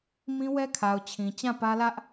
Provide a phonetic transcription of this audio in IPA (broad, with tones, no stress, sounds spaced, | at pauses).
m ĩ˦ w ɛ˦ kʰ a˨ ʊ̯ t͡ɕʰ ĩ˨ t͡ɕ ã˦˨ p ä˦ l ä˦ ʔ